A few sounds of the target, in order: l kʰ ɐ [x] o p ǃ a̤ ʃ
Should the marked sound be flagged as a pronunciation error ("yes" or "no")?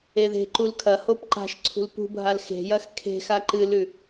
yes